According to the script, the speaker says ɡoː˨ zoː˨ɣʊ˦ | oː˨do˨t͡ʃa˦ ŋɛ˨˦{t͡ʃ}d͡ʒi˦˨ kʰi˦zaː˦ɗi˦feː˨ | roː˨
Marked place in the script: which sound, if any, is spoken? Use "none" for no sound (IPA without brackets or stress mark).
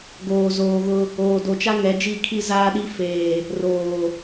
none